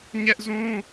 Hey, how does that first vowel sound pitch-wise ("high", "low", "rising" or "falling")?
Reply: high